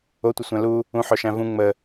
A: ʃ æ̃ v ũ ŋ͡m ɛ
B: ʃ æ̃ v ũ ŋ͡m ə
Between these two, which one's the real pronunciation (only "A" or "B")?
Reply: B